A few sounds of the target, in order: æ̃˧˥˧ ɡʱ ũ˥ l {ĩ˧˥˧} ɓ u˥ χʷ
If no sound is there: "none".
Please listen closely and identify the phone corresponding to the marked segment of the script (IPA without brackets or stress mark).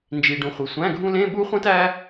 ẽ˧˥˧